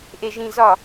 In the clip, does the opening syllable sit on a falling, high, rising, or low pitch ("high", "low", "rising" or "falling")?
low